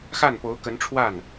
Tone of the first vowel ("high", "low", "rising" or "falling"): falling